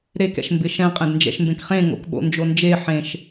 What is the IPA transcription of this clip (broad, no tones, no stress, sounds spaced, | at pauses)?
ɾ e k ɛ̰ ʃ m b ɪ ʃ ɛ̃ qʼ ɛ̃ d n d͡ʒ ɛ̰ ʃ m b ẽ k χ ẽ ŋ o̰ k ɓ o̰ n d͡ʒ o n d͡ʒ e ħ ẽ ʃ